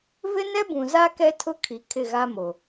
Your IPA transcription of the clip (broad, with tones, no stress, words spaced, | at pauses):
vɪ˦nɛ˦bũ˨za˦ kɛ˦tʰʊ˦ kʰi˨kʰɪ˦˨ɣa˦mo˨